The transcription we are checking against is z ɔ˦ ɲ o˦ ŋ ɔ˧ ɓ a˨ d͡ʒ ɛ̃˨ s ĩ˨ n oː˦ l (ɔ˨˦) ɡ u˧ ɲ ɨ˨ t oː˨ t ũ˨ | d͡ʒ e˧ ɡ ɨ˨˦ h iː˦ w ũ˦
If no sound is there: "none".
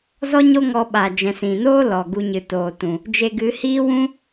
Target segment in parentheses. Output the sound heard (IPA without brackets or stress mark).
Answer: ɔ˨